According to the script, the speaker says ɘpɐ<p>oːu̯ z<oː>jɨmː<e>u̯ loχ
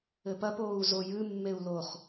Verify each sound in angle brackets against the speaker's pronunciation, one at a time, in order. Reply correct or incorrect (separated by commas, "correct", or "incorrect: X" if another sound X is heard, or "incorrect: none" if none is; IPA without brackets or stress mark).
correct, incorrect: o, correct